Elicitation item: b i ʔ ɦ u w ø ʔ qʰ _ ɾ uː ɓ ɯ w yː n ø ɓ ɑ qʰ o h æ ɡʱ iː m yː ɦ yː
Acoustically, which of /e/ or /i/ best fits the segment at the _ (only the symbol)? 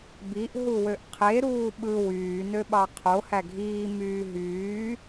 e